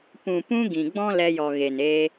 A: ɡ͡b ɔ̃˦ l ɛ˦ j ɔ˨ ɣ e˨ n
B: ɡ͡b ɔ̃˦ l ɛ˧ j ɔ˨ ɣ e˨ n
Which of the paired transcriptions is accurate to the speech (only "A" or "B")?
B